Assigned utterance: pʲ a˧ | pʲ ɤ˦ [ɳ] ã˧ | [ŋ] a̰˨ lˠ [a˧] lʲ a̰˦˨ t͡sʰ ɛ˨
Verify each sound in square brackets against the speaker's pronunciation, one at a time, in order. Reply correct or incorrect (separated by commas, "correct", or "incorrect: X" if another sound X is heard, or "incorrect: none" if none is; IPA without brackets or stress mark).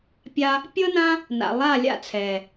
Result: incorrect: n, incorrect: n, incorrect: a˦˨